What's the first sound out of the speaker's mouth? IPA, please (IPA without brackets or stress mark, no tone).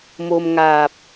m